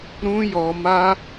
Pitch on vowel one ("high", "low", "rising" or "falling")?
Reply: high